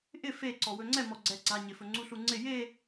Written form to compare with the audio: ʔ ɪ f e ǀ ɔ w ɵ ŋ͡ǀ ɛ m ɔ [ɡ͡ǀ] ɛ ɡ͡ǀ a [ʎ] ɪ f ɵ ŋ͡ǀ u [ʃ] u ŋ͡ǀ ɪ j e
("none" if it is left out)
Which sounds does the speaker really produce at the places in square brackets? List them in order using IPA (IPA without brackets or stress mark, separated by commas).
ɡ͡ǀ, ɲ, ɬ